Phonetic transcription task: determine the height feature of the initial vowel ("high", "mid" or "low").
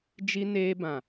high